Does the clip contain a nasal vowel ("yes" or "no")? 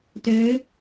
no